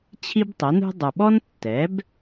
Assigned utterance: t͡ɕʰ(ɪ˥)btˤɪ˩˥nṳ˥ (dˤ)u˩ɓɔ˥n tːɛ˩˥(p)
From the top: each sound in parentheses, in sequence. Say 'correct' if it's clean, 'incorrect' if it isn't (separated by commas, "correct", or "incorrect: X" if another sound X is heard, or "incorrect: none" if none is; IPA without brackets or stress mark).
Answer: incorrect: i˥, correct, incorrect: b